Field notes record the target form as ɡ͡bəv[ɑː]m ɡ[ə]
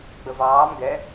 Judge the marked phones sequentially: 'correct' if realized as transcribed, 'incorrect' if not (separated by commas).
correct, incorrect